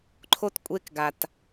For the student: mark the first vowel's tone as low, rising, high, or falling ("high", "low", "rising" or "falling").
high